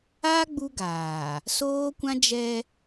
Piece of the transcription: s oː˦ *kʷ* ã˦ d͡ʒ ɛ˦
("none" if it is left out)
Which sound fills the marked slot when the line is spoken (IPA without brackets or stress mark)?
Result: kʷ